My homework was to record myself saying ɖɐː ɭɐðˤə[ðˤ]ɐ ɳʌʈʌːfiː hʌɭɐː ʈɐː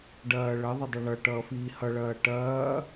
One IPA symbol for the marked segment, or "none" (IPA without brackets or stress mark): dˤ